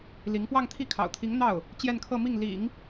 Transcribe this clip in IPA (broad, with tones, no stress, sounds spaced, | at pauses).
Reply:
l i˧˥ ŋ p w ɑ˥˧ ŋ t̪ʰ i˥˩ kʰ ɑ̰˨˩ ʊ̯ t̪ʰ i˧˥ ŋ n̪ ɑ˥˩ ʊ̯ | t͡ɕ j ɛ˥˧ n kʰ ɤ˥˧ m i˥˩ ŋ l ḭ˨˩˦ ŋ